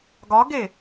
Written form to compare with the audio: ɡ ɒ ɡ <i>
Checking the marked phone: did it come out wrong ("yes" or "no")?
yes